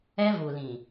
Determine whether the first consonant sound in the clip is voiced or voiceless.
voiced